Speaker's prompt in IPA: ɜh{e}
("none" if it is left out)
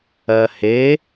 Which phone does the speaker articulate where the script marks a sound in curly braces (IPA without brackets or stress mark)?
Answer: e